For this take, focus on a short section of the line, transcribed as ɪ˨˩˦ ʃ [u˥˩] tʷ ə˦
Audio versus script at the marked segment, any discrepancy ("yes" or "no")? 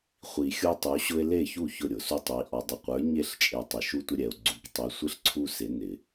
yes